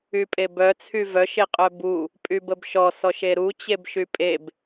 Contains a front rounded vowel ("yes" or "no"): yes